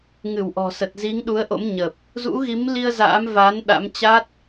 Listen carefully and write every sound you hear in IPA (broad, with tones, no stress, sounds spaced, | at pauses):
ŋ ɨ˧˩ w ʔ ɔ̤˨˩ s ə˨˩ t̚ z i˨˦ ŋ ɗ u˨˦ ə̯ ʔ o̰˧˥ m ɲ ə˨˩ p̚ | z ṵ˧˥ ɣ i˨˦ m l i˧ ə̯ z a̰ː˧˥ m v a˨˦ n ɗ a̰˧˥ m t͡ɕ a˦˥ t̚